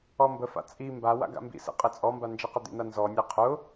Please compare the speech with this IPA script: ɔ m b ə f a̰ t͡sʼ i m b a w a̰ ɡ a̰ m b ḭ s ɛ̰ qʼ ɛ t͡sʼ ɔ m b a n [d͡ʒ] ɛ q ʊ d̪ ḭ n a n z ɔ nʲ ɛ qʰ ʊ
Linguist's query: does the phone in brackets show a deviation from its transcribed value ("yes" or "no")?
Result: no